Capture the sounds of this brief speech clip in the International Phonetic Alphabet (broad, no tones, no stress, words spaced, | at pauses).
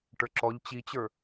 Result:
ʈə˞ǁɔʎ t͡ɕit͡ɕə˞